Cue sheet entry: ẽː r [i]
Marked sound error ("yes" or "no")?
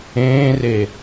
yes